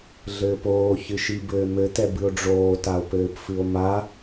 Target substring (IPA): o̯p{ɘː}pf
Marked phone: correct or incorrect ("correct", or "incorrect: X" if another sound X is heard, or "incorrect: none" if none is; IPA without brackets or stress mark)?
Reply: correct